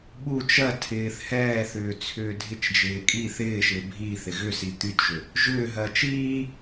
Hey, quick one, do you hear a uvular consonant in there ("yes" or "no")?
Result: no